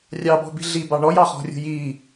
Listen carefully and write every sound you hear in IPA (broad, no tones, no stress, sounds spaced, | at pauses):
rʲ ɑ b ɔ̤ b i̤ ɮ i b ɑ ɳ ɔ j ɑ χ ɔ̤ rʲ ṳ j i